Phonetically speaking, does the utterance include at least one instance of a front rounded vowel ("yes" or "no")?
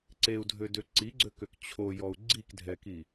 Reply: yes